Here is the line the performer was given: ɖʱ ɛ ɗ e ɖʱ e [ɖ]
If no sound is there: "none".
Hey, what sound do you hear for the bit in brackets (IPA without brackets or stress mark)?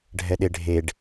ɖ